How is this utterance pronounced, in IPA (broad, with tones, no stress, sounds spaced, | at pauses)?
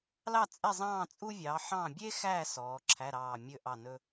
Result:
l ɑ˦˨ t͡sʼ ɛ˦˨ zˤ ɑ̃ː˦˨ t͡sʼ u˥ vʲ ɑː˨˦ ħ ɑ̃˦˨ bʲ e˥ x æ˦˨ s ɔː˨˦ ǁʰ æ˧˥˧ ɾ ɑː˦˨ mʲ ɵ˥ ʔ ɑ˦˨ n ɵ˥